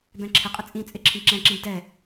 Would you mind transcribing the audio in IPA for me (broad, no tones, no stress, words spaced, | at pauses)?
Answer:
bɛ̃ǁʰɪqʼɪ t͡sʼĩ t͡sʼɪǁʰĩ ǁɛ̃ǁĩb dɛ